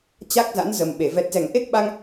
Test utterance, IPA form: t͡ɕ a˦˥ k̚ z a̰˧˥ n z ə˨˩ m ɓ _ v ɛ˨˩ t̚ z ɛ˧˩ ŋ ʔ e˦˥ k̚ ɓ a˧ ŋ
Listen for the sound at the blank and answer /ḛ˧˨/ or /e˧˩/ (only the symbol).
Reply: e˧˩